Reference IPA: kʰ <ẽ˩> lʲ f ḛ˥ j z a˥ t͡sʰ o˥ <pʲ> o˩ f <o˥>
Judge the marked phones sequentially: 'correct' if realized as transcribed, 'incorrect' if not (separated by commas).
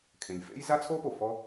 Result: correct, incorrect, incorrect